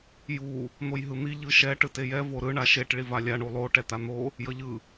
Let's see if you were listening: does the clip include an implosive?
no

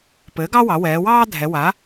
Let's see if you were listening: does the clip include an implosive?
no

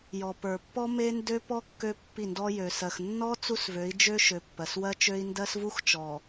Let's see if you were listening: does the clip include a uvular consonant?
no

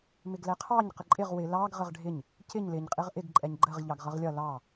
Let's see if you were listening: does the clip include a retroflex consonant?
yes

